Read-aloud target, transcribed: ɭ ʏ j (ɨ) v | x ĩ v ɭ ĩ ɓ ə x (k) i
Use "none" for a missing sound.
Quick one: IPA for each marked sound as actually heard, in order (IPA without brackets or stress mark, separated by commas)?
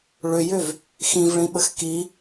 ʏ, k